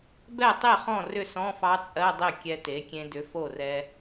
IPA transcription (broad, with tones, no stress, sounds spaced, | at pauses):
b ɛ˥˩ tˤ e˥˩ χ ɔ̃˥˩ r ʏ˥˩ s ɔ̃˧˥˧ f ɑ˧˥ t͡sʼ ɜ˧˥˧ dˤ e˥˩ kʲ ɛ˧ t e˩˥ kʲ ẽ˧ d ʏ˩˥ f o˥˩ r ɛ˧